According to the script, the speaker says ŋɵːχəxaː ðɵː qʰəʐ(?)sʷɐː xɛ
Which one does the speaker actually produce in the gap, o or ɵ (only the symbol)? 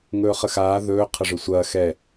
ɵ